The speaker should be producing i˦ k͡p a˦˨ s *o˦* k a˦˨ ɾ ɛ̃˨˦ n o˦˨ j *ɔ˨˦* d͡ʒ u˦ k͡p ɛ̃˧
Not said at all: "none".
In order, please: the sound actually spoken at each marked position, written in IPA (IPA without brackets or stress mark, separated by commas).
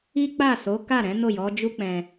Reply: o˨˦, ɔ˨˦